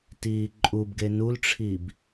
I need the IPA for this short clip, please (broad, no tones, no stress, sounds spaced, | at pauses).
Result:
t iː ǃʼ u b ɡ e n u l ʈ͡ʂʰ i b